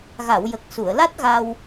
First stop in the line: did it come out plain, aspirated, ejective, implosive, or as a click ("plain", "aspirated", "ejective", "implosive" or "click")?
plain